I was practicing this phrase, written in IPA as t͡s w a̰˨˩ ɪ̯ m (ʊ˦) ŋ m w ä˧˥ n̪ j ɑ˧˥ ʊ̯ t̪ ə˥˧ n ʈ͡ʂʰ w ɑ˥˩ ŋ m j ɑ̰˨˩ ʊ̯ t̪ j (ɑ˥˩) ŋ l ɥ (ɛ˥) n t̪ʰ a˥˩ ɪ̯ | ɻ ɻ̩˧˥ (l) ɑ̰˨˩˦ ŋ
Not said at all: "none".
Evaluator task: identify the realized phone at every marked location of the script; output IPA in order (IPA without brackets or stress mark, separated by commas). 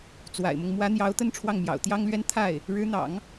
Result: ʊ˦, ɑ˥, ɛ˥, n̪